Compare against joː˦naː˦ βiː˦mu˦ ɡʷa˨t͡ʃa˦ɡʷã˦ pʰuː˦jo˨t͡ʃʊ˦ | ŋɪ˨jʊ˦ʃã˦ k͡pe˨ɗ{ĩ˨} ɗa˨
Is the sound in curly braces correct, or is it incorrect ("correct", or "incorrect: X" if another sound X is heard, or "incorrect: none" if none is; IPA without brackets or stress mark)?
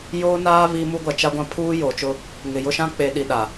incorrect: i˨